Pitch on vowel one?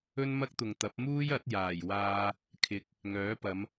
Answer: high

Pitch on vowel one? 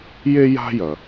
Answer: high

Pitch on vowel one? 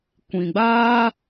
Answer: low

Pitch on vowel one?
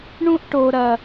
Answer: high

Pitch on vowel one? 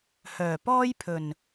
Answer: low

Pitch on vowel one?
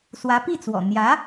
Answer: rising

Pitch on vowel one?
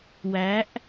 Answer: rising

